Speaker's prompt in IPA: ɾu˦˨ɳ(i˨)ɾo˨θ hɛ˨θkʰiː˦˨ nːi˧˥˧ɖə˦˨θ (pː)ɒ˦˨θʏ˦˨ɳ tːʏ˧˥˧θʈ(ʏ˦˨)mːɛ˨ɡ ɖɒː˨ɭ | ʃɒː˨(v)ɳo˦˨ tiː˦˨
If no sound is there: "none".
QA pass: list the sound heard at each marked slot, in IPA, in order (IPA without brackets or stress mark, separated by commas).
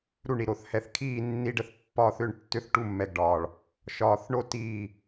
i˨, pː, u˦˨, θ